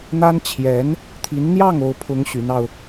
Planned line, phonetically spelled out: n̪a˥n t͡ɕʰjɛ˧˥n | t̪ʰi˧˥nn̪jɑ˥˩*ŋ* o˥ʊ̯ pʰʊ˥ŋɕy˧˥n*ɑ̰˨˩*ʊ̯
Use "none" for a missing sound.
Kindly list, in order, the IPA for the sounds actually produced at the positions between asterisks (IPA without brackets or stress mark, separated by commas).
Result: ŋ, ɑ˧